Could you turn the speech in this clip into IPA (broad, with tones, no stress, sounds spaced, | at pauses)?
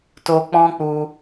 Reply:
t o˧ k͡p ɔ̃˦ k͡p u˧